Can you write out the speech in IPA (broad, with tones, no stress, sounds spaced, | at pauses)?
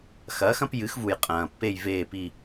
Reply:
x ɐː˩˥ x ɐ̃˩˥ p j ɨ˩˥ x v u˩ j qʼ ɐ̃ː˩ pː e˦˨ j v eː˦˨ p i˦˨